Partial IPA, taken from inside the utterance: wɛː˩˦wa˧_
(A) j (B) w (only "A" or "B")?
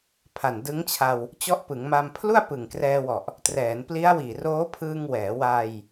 A